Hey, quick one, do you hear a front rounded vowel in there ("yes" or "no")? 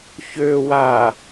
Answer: yes